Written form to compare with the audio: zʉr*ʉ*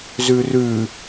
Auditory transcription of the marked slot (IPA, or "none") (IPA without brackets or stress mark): ʉ